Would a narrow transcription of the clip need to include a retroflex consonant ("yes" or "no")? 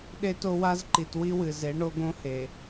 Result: yes